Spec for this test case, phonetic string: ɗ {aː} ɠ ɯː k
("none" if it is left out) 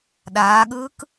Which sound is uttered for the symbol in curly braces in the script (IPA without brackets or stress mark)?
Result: aː